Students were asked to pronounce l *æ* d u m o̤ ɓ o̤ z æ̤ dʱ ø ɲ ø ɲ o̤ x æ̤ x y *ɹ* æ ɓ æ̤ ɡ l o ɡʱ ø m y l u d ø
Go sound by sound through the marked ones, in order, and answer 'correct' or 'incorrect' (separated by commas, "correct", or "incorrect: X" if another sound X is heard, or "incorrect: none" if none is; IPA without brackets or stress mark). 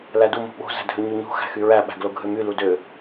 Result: correct, correct